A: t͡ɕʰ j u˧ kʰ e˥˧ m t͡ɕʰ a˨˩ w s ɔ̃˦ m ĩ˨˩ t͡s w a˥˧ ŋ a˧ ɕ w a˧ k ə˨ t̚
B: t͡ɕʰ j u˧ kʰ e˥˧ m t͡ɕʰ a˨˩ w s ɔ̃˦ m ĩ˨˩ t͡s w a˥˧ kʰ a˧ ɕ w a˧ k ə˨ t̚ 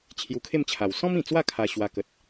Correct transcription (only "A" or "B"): B